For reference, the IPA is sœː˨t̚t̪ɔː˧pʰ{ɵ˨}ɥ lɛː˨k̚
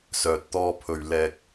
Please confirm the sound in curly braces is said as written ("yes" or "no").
yes